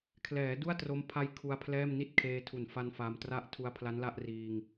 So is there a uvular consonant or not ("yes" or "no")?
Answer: no